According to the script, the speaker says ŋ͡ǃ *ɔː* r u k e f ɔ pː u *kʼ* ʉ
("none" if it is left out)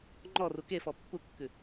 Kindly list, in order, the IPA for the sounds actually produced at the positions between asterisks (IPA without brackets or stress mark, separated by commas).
ɔ, kː